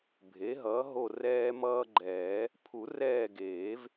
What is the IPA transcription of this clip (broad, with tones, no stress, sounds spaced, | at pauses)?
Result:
bʱ e˩˥ ɦ ʌ˩˥ ɦ o˦˨ r ɛː˦ m ʌː˦ ɡ͡ǃ ɛː˨˩˦ | pʰ u˨˩˦ r ɛː˦˨ ɡ eː˨˩˦ v